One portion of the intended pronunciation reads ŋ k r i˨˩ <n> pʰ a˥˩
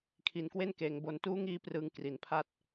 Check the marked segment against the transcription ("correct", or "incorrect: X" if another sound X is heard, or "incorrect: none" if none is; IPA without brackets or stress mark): correct